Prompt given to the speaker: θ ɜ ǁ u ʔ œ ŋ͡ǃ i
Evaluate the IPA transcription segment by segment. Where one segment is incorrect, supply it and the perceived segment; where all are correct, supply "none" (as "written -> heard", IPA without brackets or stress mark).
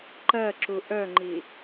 θ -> ǃ